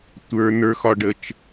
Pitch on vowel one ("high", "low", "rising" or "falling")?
low